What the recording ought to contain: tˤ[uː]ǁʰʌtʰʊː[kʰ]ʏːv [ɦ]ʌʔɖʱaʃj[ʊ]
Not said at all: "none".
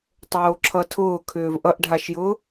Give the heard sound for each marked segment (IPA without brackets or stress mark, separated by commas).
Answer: oː, kʰ, ʔ, ʊː